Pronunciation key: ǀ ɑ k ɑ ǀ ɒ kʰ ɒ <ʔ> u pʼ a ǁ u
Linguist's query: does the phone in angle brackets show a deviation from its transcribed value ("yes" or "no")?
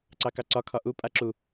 no